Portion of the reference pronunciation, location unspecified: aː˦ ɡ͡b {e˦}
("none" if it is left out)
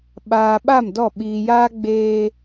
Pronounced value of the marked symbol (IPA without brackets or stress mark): eː˦